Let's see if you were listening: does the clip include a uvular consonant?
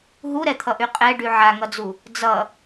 yes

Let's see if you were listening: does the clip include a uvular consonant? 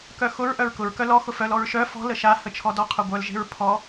yes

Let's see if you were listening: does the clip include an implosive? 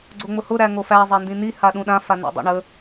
yes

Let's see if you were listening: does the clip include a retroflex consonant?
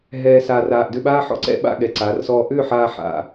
no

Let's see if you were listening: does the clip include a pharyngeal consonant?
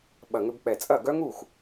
no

